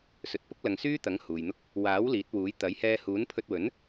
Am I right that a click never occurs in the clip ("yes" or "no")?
yes